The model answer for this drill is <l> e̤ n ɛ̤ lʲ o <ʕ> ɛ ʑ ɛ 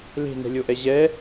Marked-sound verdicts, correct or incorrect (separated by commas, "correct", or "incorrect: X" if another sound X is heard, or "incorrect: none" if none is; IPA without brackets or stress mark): correct, incorrect: ʔ